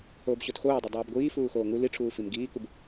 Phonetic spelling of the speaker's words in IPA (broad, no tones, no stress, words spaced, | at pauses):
hoːbɕotxoːdˤe dˤuːbɡʷiː fuːxoːŋu liʈ͡ʂʰuː fimɡiːkub